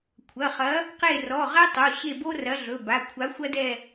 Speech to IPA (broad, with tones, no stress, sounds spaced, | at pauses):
kʷʰ ɐ˩˧˩ χ ɐ˨˥ | q e˦˨ r ɔ˩˧˩ ʁ ɛ˥ tˤ o˩˧˩ ɕ e˦˨ b o˥ r ɐ˨˥ ɮ ɵ˩˧˩ b a˩˧˩ kʷʰ a˨˥ xʷ ɐ˥ d ɛ˦˨